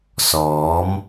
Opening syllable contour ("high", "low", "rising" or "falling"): rising